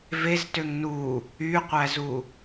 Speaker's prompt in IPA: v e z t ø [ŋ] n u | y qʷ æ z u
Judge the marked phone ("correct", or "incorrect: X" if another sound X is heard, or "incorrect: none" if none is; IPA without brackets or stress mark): correct